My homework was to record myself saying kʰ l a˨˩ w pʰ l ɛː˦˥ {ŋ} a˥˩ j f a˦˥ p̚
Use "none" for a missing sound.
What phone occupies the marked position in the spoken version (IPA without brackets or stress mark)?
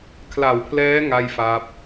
ŋ